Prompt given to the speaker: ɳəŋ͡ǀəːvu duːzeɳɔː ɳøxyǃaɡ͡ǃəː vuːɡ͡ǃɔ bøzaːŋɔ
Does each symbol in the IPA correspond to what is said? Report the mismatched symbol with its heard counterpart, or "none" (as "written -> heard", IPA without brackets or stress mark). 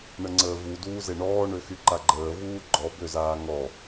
none